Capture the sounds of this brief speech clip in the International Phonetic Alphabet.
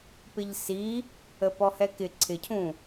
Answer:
pɪʎsi | əpɔhɛkɪ ǀʰɪcʰũ

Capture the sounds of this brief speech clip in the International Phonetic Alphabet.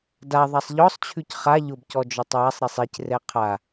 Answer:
da ðˤasˤʎɔsˤt͡ɕʰʉc χa ʎʊbcɔ d͡ʒɔtˤwasˤɾisˤ icrɛ qʰa

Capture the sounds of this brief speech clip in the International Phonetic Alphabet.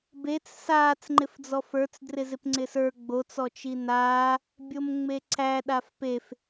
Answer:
bet͡s saːt͡sŋ͡ǃɪfd͡zɔ fə˞t͡s drɪzɪpŋ͡ǀɪsə˞ ɡ͡bot͡sɔ t͡ʃinaː | bʲomŋ͡meǀæ ɗafpef

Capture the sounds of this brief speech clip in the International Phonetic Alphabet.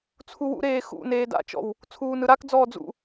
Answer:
t͡sʰuwṵɾeː xṵneː da̰t͡ʃɔ̰w | t͡sʰuːnɯɾakd͡zɔː d͡zṵ

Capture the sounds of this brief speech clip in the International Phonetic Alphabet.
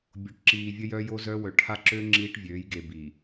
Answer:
bʲo˨ʈǁiː˨vʲə˦jœ˦ jo˦zœ˦wœ˨ ʈʰa˦ǁø˦ ŋ͡ǁiː˦ʈvʲøː˨˦jɡe˨ bi˨

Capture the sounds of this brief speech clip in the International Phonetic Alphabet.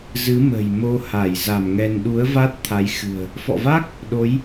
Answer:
zɨ˨˦mə̤˨˩j mo˧ha˧˩j za˧˩mŋɛ˧n ɗu˨˦ə̯va˦˥t̚ t̪ʰa˨˦jxɨ̤˨˩ə̯ | fɔ̰˧˨va˦˥k̚ | ɗo˨˦j

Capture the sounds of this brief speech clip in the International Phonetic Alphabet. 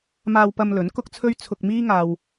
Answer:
maː˧wpɐ˧mlɵ˨˥n kʊ˥k̚t͡sʰɵ˥ɥ t͡sʰʊ˧k̚ miː˥ŋaː˧w

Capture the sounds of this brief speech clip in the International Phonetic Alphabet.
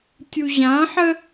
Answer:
tʲuʑãħə

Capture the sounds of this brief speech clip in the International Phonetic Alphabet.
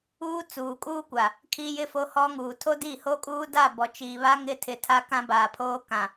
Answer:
uː˦t͡suː˨kʼuː˦kʷa˨ | kʰi˦jɪ˦ fo˦hɔ˦ŋuː˨ tʰo˦di˦˨ho˦kʼuː˦ da˦˨bɔ˨t͡ʃiː˨βa˦ ŋɪ˦ tʰɪ˨tʰa˦ kã˦baː˨pʰoː˦ kã˨

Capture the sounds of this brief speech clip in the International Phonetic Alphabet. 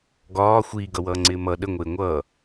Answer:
ɡɒː xʷiːɡʌwʌːŋ͡ǀɪː mʌ ɗəŋʷɪː ŋʷʌː

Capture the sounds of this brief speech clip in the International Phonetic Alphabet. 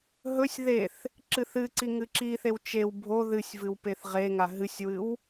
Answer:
ɦɵsʲ ðeθ | ǁɨθɨǀi ŋɨǁiθew t͡ʃew bʱo ðɨsʲvɨw peθʁeŋa ɦɨsʲwɨw

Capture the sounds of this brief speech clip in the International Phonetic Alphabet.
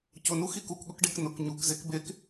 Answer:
cʊnu xikukɠʊkɖek nʊk ɲukzek bek

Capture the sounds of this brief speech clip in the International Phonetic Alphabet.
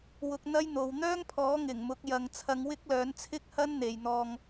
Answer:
wʊ˧k̚n̪ɐ˥jn̪o˨w n̪œː˥ŋpʰɔː˨˥ ŋɪ˨˩ŋmʊ˨˥k̚jɐ˨ŋ t͡sʰɐ˧ŋwɪ˥k̚lœː˨˥nt͡sʰɪ˥k̚ hɐ˥nn̪e˨jn̪ɔː˧ŋ

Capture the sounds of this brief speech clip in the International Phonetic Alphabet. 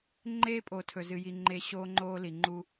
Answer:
ŋ͡ǃeː˦pʼo˨tʰɵ˨ zɨ˨ji˨ ŋ͡ǃe˦ ɕoː˦ŋ͡ǃoː˦li˨ŋ͡ǃu˦

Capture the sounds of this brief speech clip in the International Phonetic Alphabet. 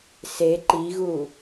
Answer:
se ǃiɣu

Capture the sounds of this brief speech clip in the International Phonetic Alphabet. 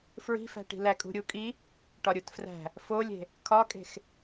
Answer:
fɹi̤fæ̤ʈi̤ lækʼṳɾʲukʼi | ʈɒɾʲutfræ̤ | folʲe̤ | kʰɒkʼe̤x

